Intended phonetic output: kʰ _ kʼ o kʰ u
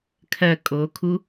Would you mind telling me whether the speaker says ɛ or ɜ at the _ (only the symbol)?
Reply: ɜ